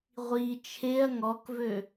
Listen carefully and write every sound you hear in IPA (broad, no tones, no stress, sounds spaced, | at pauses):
ʁʷ i t͡ʃʰ e ɐ̯ ŋ ɔ k v ø